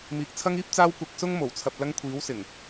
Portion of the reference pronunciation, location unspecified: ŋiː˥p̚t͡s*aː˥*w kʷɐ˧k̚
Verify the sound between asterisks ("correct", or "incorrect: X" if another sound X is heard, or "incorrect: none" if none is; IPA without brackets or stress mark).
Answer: correct